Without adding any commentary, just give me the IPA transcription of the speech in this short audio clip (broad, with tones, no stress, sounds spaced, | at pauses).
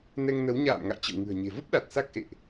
n ɛ˧ ŋ n ə˨˦ w ɲ a̰ː˧˨ m ŋ a̰˧˨ j t͡ɕ ə̰˧˨ w ŋ ɨ̤˨˩ ə̯ ɲ e̤˨˩ v ə˦˥ p̚ ɗ a˨˩ t̚ s a˦˥ k̚ ʔ ḛ˧˨ ʔ